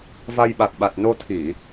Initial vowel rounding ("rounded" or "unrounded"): unrounded